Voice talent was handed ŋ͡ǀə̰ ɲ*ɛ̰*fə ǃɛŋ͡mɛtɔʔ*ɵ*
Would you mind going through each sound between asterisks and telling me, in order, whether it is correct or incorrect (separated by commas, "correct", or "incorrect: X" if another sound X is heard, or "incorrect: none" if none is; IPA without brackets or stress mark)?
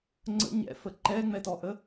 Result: correct, incorrect: ə